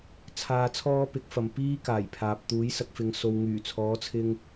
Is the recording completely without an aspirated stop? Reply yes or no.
no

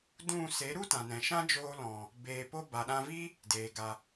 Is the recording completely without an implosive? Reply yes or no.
no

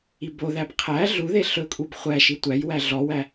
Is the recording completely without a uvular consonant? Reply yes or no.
no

